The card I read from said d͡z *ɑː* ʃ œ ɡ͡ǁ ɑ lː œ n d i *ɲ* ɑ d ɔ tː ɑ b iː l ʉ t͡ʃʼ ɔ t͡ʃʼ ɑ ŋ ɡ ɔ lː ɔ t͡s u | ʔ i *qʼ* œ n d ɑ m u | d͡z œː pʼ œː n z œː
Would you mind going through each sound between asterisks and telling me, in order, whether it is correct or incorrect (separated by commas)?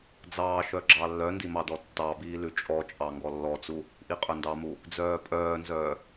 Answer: correct, incorrect, correct